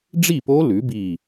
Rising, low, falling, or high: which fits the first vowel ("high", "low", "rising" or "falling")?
falling